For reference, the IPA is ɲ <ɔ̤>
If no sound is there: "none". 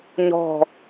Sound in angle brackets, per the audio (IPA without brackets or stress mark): ɔ̤